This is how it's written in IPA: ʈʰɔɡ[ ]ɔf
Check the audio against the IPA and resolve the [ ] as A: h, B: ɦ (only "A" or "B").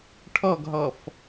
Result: B